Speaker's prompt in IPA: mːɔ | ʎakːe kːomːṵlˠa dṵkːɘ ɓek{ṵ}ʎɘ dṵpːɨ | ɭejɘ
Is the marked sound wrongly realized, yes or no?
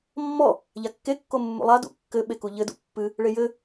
yes